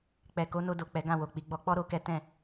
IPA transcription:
k͡p ɛ˨ k o˨˦ n o˧ d o˨ k͡p ɛ˨˦ ɡ ã˦˨ w o˨ k͡p i˨˦ ɡ͡b ɔ˧ k͡p ɔ˦ ɾ o˦ k ɛ˦ t ɛ̃˦˨

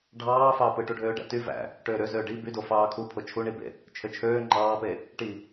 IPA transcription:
ɖʱ ɑː f ɑː p ɯ ʈ u ɖʱ øː ɖ æ̰ t y v æ̰ | ʈ øː ɾ ø z øː ɖ i b y d o f ɑː kʰ u pʰ o t͡ʃʰ u ɳ i b ḛ | t͡ʃʰ ø t͡ʃʰ øː ŋ͡ǃ ɑː p e | ʈ i

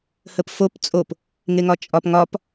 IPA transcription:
h ə p f o p t͡sʼ o p | ŋ e ŋ ɒ t͡ʃʼ ɒ p ŋ ɒ p

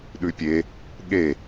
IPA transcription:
ɗ ʉ pʲ e | ɠ e

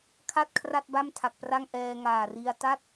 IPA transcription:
kʰ a˥˩ t̚ kʰ r a˥˩ t̚ b a˥˩ m tʰ a˨˩ k̚ p r a˥˩ ŋ ʔ ɛː˧ ŋ aː˨˩ r i˧ a̯ t a˥˩ t̚

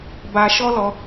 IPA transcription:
b a˧ ʃ ɔ˦ l ɔ˧

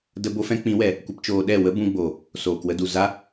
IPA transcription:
d ə˦ b o˦ f ɛ̃˦ k͡p ĩ˨˦ w ɛ˨ | kʷ ə˧ p t͡ʃ oː˧ ɗ ɛ˦˨ w ə˦ b ũ˧ ɡ͡b o˨ | s oː˨ k w ə˧ d u˨ z a˦

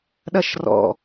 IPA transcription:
ɗ ɐ ʃ r ɔ̰

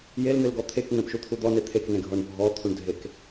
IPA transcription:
j e l n̪ e l ɡ ɔ t̪ʰ e k ŋ͡m ẽ p ʃ u t̪ʰ u d̪ ɔ n e t̪ʰ e k n ẽ ɡʱ ɔ ɳ bʱ ɔ t̪ʰ u ɳ dʱ e k

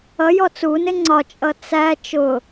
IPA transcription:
ʌ j ɔ t͡s u n ɪ ŋ͡ǀ ɒ t͡ʃʼ ʌ t͡s æ t͡ʃ ʊ

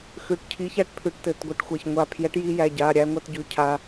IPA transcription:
x ʉ˩˧˩ ʈ cʰ i˨˥ ç æ˥˩ ʈ pʰ ʉ˨˩˦ ʈ t ɘ˩˧˩ t ɡʷ ɘ˧˩ ʈ xʷ æ˧˩ ç ŋʷ a˧˩ pʰ j ɛ˨˥ ʈ j i˧ j æ˩˧˩ ɟ a˩˧˩ ɾʲ æ˧ ŋʷ a˧ t ɟ ʉ˨˥ cʰ a˧

